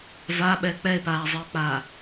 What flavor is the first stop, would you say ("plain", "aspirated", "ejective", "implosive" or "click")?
implosive